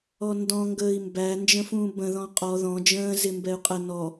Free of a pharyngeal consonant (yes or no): yes